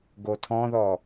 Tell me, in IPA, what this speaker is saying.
ɡ o tʰ ɔ̃ ð ɔ

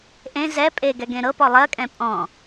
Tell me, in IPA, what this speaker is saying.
ʔ ẽ z ɛ pʼ e ɡ ɛ ɡ ẽ ɾ ɤ p ɔ lˠ ɜ kʼ ɛ̃ pʼ ɔ̃

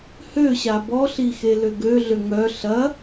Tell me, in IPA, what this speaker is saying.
h ø ɕ a b ɔ ɬ i x e l ø ɡ ø ɮ ø ŋ œ ɬ ɐ

